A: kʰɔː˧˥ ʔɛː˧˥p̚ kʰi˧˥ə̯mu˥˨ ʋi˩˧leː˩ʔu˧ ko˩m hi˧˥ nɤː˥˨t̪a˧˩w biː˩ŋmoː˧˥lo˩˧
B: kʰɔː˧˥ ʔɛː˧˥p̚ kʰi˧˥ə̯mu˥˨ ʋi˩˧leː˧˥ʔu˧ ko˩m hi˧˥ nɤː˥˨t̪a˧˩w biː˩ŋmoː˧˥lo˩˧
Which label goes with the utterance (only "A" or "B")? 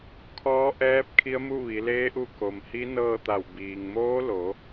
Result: B